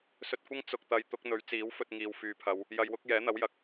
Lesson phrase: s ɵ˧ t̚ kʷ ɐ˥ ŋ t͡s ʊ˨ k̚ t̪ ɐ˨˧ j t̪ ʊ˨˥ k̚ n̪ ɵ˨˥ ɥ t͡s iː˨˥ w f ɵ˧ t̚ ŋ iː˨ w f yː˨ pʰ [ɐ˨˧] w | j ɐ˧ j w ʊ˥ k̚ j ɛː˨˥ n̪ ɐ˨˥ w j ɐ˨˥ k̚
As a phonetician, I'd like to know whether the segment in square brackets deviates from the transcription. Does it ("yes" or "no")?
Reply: no